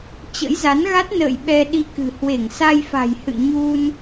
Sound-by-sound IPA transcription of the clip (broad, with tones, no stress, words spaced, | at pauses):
t͡ɕə̰˧˥jza˨˦nɣa˦˥t̚ nə̰ː˧˨j ɓɛ˧ɗi˧kɨ̤˨˩ hwe˧˩ŋsa˧jfa̤˨˩jhɨ̰˧˨ ɲu˧n